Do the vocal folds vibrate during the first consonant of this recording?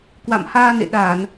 no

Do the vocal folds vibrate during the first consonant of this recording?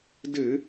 yes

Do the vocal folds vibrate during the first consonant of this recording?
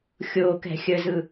no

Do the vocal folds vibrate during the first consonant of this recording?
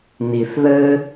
yes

